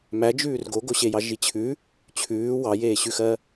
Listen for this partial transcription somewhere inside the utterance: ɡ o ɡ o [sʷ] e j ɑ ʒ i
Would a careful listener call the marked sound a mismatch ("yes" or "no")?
yes